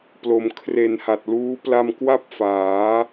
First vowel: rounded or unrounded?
rounded